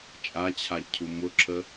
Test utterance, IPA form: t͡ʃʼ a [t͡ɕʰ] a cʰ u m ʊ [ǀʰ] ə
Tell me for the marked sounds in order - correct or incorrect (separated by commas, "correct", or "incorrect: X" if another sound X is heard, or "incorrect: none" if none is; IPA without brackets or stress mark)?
correct, incorrect: ǁʰ